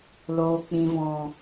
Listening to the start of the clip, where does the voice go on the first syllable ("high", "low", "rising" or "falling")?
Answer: low